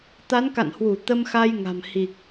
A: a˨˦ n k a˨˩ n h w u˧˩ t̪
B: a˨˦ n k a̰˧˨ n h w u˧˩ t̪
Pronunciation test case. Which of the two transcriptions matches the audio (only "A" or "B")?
B